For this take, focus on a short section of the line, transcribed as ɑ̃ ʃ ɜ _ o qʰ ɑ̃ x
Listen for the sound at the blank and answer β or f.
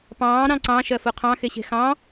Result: f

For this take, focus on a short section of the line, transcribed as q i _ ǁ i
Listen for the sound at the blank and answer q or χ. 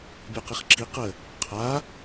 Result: χ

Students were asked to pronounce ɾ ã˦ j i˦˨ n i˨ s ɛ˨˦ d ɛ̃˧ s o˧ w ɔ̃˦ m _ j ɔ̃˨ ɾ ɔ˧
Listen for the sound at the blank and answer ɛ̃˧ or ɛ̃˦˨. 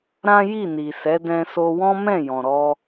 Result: ɛ̃˦˨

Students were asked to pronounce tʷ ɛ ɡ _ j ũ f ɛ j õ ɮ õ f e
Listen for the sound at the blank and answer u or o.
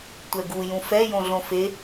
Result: u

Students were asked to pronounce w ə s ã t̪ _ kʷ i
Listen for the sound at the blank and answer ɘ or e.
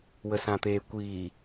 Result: e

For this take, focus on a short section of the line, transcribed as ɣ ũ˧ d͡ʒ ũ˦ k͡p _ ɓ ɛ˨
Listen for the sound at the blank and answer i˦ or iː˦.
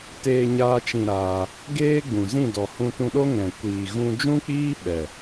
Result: iː˦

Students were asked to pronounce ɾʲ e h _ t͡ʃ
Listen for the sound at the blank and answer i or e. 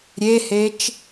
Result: e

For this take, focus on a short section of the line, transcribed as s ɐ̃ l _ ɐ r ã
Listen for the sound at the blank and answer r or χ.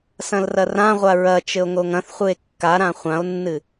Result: r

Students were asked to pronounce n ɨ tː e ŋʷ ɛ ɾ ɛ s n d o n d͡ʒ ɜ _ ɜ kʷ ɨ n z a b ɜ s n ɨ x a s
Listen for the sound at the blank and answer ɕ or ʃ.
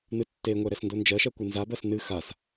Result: ʃ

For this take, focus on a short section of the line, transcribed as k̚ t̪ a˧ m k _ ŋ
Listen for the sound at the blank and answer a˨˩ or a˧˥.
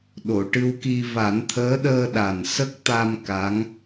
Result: a˧˥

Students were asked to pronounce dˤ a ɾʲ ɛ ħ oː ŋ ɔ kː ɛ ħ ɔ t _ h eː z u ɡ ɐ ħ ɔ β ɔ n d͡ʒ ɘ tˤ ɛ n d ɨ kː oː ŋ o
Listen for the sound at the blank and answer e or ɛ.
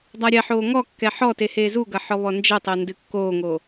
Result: e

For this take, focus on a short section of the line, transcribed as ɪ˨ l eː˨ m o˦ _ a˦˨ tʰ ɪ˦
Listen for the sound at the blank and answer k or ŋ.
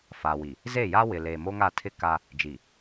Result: ŋ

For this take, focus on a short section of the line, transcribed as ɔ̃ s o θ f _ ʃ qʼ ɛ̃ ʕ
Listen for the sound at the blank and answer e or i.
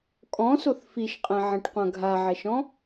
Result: i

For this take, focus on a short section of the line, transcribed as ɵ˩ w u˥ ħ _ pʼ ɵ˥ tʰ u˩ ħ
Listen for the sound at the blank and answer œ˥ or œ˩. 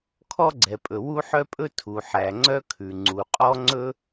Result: œ˥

